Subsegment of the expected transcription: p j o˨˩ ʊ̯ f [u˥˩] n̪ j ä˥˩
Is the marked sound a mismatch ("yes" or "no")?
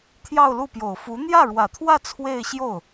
yes